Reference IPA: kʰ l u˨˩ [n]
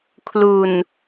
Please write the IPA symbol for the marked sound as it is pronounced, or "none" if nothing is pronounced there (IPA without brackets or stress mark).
n